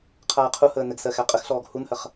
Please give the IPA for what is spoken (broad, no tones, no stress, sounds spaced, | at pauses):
qʰ aː qʰ u h əː n ɘ ɡ s ɜ x æ qʼ ə x ɬ ɔː ɡ h u n h ɜ χ